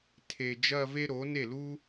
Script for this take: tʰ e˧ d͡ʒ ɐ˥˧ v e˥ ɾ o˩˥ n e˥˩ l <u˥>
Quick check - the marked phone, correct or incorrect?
correct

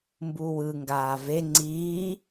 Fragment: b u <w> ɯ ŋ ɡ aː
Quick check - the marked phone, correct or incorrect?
correct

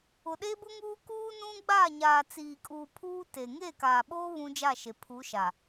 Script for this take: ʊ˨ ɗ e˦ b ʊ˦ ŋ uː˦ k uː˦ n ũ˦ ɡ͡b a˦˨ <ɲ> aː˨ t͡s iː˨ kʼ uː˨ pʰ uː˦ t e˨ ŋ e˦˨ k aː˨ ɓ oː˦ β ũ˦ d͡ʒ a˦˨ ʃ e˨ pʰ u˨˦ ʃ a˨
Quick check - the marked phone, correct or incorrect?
correct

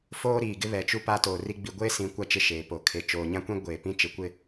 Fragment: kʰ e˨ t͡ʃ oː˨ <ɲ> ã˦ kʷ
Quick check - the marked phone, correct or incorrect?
correct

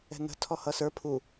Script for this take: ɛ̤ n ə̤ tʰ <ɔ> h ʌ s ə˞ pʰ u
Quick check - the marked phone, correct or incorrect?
correct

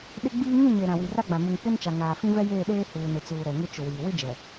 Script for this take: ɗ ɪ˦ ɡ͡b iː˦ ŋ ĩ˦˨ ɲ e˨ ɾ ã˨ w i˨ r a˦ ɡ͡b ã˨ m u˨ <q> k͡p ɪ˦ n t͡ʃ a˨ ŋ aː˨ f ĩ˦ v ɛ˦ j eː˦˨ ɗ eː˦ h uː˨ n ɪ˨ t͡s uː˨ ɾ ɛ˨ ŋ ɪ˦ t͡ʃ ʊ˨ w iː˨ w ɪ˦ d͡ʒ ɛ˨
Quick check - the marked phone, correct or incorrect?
incorrect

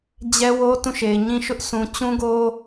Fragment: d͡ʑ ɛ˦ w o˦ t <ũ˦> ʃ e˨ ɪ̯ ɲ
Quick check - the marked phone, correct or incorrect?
incorrect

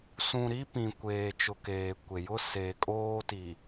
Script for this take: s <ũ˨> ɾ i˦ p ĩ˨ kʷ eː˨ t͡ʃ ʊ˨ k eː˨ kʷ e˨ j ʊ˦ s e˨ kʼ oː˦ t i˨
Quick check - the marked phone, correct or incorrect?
correct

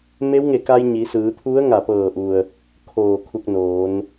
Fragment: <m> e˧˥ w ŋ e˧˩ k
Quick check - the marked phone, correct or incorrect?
correct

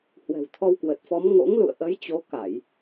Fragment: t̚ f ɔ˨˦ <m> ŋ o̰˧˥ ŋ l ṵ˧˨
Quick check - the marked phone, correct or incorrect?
correct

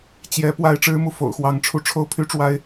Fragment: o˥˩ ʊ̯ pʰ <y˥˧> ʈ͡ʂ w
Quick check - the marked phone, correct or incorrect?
incorrect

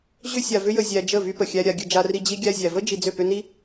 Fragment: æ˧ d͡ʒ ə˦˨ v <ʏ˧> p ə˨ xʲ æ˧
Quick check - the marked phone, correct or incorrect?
incorrect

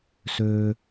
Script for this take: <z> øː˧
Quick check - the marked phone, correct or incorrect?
incorrect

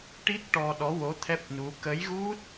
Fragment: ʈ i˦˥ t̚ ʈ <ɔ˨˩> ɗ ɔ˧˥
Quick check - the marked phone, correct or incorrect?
incorrect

